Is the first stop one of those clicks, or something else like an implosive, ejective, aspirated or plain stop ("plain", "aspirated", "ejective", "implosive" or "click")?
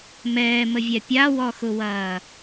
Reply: plain